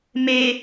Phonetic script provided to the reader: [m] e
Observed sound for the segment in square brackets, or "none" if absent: m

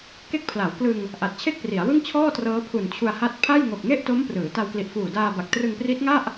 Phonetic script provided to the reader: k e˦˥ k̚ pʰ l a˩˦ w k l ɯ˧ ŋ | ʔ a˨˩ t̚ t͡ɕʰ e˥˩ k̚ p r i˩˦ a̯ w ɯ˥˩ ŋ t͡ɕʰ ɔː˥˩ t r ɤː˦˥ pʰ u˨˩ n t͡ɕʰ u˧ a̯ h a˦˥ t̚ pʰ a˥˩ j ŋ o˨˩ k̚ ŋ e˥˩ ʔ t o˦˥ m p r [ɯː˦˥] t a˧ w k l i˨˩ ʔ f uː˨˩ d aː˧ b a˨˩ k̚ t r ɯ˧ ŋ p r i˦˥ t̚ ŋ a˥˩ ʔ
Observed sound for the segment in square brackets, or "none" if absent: ɯː˩˦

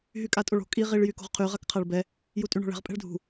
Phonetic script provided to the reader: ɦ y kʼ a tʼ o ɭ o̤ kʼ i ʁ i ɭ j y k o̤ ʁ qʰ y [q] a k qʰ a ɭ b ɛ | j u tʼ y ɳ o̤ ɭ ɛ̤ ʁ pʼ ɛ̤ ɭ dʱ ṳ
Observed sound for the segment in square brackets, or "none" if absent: ʁ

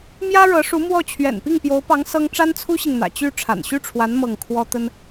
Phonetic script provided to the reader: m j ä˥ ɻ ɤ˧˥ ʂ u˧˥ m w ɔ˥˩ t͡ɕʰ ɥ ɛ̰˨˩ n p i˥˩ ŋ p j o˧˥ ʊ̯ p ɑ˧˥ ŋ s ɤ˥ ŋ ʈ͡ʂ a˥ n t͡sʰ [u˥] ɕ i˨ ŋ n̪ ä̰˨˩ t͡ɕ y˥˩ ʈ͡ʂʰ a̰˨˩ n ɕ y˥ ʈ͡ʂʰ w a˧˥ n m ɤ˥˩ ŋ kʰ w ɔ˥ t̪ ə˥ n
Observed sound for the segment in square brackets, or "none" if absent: u˥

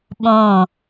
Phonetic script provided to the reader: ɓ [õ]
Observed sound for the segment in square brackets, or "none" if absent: õ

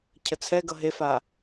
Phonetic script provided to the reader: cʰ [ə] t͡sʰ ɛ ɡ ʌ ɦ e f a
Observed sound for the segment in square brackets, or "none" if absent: ə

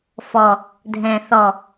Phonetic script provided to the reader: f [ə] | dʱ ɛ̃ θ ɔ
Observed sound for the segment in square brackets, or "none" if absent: ɔ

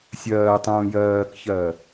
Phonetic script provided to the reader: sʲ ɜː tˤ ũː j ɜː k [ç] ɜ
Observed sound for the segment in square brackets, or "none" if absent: ç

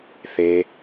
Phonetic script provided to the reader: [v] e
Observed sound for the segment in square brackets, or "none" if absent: θ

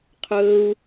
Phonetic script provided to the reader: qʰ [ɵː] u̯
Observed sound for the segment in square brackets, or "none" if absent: ɵː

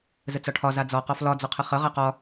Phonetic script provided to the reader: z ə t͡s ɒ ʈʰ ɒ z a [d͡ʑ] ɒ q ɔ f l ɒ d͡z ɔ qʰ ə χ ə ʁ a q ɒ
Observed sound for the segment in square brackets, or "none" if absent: d͡z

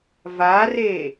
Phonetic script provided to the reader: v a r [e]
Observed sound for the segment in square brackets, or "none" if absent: e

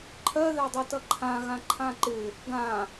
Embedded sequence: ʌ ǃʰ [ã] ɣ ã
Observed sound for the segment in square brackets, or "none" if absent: ã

